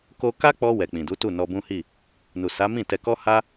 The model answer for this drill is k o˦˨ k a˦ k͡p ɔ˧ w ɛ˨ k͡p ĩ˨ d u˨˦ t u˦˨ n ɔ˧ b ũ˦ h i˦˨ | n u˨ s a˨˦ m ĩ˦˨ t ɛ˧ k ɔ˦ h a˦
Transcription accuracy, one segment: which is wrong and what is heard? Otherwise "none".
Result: o˦˨ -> o˧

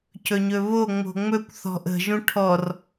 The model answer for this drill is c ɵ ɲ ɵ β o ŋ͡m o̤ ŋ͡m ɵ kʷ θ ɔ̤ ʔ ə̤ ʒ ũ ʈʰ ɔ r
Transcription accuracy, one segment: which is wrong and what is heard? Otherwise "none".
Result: none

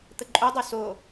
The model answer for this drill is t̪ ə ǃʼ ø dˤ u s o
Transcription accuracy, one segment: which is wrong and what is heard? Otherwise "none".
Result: ø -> u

